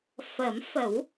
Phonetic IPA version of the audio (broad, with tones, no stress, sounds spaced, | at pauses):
f ə˨˩˦ m f ə˨˩˦ w